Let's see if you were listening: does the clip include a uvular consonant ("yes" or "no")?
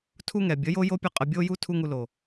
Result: yes